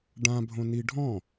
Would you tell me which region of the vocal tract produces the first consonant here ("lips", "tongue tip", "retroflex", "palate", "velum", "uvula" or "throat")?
retroflex